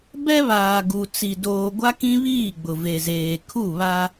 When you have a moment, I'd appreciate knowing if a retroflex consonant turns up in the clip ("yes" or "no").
no